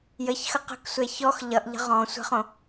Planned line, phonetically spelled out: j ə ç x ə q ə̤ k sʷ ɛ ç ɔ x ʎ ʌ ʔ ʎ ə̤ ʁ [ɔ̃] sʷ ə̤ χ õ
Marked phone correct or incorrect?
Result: correct